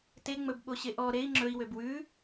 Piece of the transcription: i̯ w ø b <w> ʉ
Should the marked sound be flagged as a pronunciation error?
no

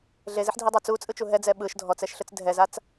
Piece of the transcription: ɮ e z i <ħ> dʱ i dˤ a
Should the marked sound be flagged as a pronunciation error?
no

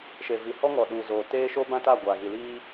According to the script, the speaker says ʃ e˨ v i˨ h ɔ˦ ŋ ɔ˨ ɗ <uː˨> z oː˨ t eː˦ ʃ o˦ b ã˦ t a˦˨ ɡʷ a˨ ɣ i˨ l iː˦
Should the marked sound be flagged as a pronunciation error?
no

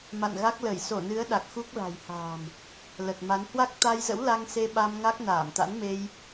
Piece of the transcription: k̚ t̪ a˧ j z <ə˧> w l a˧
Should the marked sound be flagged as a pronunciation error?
yes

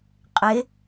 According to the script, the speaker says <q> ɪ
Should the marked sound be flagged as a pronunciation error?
yes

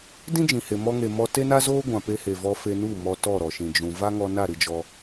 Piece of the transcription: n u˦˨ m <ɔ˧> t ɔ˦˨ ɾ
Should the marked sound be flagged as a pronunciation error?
no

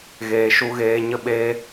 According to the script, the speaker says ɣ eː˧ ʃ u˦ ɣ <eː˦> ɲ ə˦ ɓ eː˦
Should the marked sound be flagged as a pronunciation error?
no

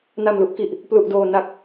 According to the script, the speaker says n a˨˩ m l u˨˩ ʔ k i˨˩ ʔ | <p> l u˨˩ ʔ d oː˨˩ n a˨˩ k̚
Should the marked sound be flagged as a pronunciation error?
no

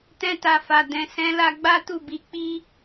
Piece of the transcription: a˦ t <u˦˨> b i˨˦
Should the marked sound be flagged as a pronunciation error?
no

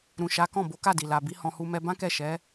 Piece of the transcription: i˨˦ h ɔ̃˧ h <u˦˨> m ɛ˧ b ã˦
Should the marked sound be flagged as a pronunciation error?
yes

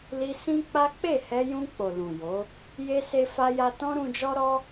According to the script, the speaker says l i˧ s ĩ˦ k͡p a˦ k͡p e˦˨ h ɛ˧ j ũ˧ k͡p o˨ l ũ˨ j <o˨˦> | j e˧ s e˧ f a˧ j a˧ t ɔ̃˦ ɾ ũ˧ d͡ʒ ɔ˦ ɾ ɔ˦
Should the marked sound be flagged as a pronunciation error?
no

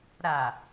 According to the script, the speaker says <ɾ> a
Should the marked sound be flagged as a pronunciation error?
no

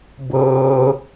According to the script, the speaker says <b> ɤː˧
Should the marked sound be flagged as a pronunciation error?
no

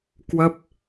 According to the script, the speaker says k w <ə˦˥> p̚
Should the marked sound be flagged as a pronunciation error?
no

